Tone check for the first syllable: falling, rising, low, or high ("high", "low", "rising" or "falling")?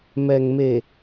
low